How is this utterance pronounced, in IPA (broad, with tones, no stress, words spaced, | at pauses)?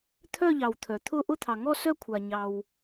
t̪ʰœ˥˧ʎɑ˩w t̪ʰœ˩t̪ʰʊ˥˧ ʔʊ˥˧t̪ʰɑ˩ŋɔ˥˧ sœ˥˧ kʷʰa˩ɲɑ˩w